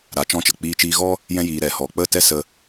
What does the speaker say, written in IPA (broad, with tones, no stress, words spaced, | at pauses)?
ɾa˨˦t͡ʃɔ̃˧t͡ʃə˨ k͡piː˧t͡ʃiː˧ɣɔ˦ | jɛ̃˦jiː˧ ɾɛ˨ hɔ˨ k͡pə˦˨tɛ˦sə˧